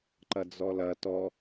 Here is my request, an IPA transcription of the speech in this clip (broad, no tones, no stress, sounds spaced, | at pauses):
ǃ ɐ d͡z ɔ l ɐ t ɔ